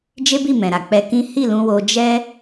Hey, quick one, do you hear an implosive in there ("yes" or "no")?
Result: no